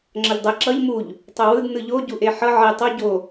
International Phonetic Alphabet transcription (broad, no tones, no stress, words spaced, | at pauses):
ŋ͡ǁʌʎdˤɛ ǁʌʎ muʎ | tˤowɯd nɯʎo ɟuʔeħʌ ʕe tˤo ɟo